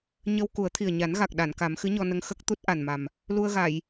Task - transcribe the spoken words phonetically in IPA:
ɲ ə˧ w k u˨˩˦ ə̯ t̪ʰ i˨˩ ə̯ ɲ a˨˩˦ n ɣ a˨˩ k̚ ɗ a˨˩˨ n k a˨˩˦ m x ɨ˧˥ ɲ ɔ˧ n ə˧ ŋ x ə˦˥ k̚ t̪ u˦˥ t̚ ʔ a˨˩ n m a˨˩ m | l u˧ ə̯ ɣ a˨˩˨ j

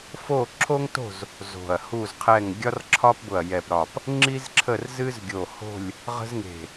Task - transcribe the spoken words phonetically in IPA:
f o˥˨ ǁʰ o˥ ŋ t o̤˥˨ z | z o̤˧˩ ɐ̯ h u˥˨ z qʰ ɛ˥˨ ŋ ɡʲ ɒ˥ r ǁʰ ɒ˥ p b ʊ˧˩ ɐ̯ j ɛ˧˩ p ɾ ɒ˧˩ p | ŋ͡ǁ i˥ z ǁʰ ə˥˨ r z ɨ˥ z ɡʲ o˧˩ h o̤˥˨ lʲ | ʁ ə̤˥ z ŋ e̤˧˩

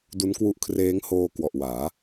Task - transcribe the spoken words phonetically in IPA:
d u˦˥ n k w u˦˥ ʔ kʰ r eː˦˥ ŋ h oː˧ k w ɔ˨˩ ʔ w aː˩˦

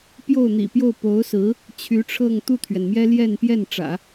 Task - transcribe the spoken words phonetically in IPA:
p j o˥˩ ʊ̯ n̪ ḭ˨˩ p j o˥˩ ʊ̯ p o˧˥ ʊ̯ s ɹ̩˧˥ | t͡ɕʰ y˧˥ ʈ͡ʂʰ ɤ˥˧ ŋ t̪ u˥˩ t̪ʰ ɥ ɛ˩ n m j ɛ˥ l j ɛ˥˧ n p j ɛ˥˩ n ʈ͡ʂ ä̰˨˩˦

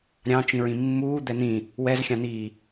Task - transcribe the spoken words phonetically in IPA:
ɾʲ ɑ̃ t͡ʃ ĩ ɹ ĩ mː uː d̪ ɛ n̪ ĩ | w ɛ z xʲ ɑ̃ n̪ iː

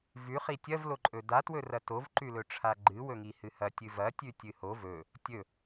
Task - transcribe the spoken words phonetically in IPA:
v ʉ χ i tʲ ɐ v l o ǃʼ ɵ d a t w ɵ r ɐ t o v ǃ ʉ l ɵ ʈ͡ʂʰ a ɡ͡ǃ ɨ w ɵ ŋ i h ɨ h ɐ tʲ ɨ v ɐ tʲ ʉ tʲ ɨ h o v ɵ | tʲ ɵ

